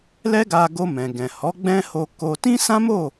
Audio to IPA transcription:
lɛ˦ɡa˧ɡo˧ mɛ̃˨ɡɛ̃˨hɔ˨˦ ɡ͡bɛ̃˦ho˧ ko˧ tĩ˦sã˦mo˦˨

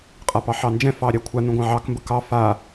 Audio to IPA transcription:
qʼapɑħɑnd͡ʒɛ̃ fɑɾʲakʷʰa nũɡʷɑ̃ʕɑk mbəkɑ fa

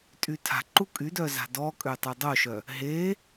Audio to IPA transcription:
tʼytʰa̤ǃu kʼydœ za̤dɔkʼø tˤydˤoʃœ | ɦe

